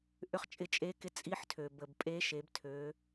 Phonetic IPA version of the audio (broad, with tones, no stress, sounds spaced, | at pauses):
ʔ ʏ˧˥ χ t͡ʃʼ ɪ˧ t͡ʃʼ e˧˥ k ɪ˧ t͡sʼ i˧˥ ħ tʰ ø˩ b ə˩ b pʼ e˧˥ ʃ e˩˧ b tʰ ø˩˧